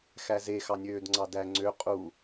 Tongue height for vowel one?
low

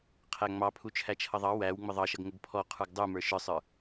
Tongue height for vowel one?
low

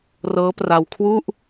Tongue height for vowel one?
mid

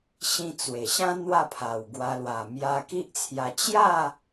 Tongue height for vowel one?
high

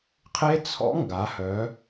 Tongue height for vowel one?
mid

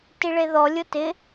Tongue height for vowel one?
high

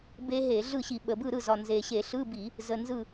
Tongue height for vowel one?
mid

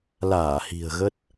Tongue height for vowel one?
low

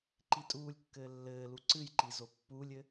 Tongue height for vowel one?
high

